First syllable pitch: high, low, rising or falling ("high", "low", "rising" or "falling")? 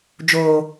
high